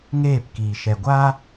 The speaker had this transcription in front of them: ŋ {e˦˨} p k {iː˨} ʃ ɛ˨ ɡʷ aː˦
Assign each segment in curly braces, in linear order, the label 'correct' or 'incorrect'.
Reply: incorrect, correct

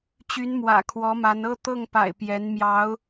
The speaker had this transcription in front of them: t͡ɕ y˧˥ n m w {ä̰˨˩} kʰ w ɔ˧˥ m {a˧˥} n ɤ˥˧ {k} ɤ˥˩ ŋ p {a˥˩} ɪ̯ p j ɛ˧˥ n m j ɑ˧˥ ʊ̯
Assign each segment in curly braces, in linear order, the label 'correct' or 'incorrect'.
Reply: correct, correct, incorrect, incorrect

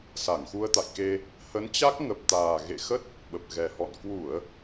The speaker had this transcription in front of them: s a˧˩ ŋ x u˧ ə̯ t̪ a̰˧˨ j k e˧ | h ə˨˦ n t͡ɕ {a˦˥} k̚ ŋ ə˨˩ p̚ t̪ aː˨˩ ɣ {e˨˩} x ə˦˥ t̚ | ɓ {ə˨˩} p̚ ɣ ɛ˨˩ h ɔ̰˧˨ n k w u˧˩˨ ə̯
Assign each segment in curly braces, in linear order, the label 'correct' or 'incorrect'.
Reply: correct, incorrect, correct

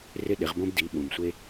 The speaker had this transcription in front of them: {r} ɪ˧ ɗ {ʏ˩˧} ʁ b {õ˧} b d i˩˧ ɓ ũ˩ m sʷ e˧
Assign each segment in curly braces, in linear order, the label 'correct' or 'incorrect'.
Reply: correct, incorrect, correct

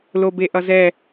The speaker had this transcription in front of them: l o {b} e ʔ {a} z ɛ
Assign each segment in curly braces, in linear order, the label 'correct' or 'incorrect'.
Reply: correct, incorrect

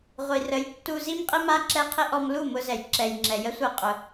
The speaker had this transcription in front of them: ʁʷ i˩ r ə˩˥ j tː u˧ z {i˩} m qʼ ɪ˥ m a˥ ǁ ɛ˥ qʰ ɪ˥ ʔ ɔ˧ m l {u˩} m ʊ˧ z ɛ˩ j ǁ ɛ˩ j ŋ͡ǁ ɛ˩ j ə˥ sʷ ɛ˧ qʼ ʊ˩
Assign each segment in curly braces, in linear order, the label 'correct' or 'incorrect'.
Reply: incorrect, incorrect

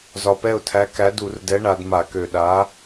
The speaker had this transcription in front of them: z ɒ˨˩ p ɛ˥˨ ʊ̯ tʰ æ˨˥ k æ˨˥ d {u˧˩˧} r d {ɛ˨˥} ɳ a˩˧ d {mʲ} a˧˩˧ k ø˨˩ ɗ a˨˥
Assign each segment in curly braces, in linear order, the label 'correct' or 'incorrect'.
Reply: correct, correct, incorrect

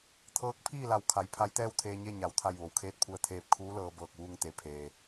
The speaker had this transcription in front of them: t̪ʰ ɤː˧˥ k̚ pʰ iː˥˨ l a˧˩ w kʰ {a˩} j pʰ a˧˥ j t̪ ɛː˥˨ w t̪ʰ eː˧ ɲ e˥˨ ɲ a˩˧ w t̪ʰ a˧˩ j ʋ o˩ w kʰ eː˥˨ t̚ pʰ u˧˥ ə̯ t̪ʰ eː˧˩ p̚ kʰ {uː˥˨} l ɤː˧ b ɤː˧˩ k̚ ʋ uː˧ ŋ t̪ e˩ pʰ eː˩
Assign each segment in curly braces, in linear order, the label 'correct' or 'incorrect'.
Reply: incorrect, incorrect

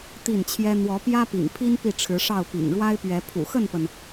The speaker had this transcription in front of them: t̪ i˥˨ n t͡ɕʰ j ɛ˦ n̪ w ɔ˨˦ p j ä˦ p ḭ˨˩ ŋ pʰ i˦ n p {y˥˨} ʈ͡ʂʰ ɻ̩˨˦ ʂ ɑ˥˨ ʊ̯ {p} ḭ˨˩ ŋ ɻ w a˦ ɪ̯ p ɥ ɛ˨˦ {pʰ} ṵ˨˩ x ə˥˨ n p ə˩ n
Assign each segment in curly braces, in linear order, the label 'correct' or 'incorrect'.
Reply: incorrect, correct, correct

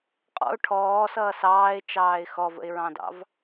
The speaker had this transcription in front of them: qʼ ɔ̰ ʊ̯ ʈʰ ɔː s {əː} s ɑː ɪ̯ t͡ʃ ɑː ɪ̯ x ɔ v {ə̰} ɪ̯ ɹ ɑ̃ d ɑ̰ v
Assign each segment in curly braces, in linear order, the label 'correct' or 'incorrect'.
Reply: incorrect, correct

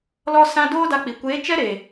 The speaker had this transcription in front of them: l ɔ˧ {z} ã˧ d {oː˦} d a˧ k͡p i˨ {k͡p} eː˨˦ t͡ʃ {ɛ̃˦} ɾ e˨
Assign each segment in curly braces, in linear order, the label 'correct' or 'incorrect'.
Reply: incorrect, correct, incorrect, incorrect

